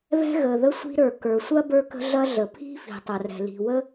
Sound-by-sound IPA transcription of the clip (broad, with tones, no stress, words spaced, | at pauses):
βɛ̤˥ɣə˩ ðə˥ sʷi̤˥ɾə˞˩ kə˞˩ sʷɐ˥ bə˞˥kə̤˥ɮɐ˥ɮə˩ pʰi̤˥fi̤˩tˤɐ˩rɛ̤˩ li̤˩wə˥